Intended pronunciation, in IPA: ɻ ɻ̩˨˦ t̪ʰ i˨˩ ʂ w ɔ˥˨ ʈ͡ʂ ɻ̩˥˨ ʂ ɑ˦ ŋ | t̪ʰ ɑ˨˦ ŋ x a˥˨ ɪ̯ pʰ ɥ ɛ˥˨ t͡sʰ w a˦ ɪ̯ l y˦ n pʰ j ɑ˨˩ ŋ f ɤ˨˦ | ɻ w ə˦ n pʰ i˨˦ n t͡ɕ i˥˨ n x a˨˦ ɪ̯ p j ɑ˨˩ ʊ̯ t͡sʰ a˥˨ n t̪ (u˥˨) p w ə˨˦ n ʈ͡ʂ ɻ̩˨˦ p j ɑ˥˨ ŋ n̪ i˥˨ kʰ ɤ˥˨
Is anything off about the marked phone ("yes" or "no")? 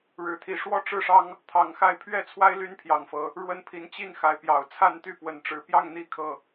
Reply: yes